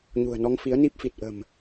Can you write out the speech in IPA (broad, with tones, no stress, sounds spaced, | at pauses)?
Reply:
ɲ ṳ˨˩ ə̯ n ɔ˧ ŋ f i˨˦ ə̯ n i˦˥ p̚ f i˨˩ t̚ ʔ ə̤˨˩ m